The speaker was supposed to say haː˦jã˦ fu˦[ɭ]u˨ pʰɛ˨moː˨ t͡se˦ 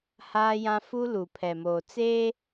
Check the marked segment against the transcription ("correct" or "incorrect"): incorrect